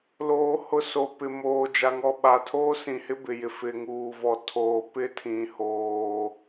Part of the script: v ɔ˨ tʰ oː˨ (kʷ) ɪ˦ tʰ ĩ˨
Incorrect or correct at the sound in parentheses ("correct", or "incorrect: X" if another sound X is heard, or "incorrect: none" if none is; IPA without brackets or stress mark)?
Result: incorrect: p